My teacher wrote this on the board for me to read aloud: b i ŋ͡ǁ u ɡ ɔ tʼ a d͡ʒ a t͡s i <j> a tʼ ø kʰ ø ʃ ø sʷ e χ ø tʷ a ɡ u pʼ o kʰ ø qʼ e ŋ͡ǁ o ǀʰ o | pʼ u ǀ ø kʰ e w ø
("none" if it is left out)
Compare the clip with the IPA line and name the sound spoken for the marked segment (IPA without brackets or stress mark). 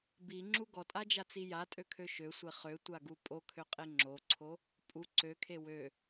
j